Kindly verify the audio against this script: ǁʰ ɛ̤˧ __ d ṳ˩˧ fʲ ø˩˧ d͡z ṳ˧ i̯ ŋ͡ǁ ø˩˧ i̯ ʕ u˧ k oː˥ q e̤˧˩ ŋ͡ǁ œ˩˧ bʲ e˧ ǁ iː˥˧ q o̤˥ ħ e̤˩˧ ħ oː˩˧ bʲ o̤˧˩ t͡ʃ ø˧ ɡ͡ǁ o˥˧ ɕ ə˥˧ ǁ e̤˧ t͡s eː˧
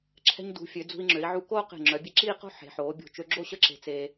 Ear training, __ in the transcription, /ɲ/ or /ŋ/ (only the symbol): ɲ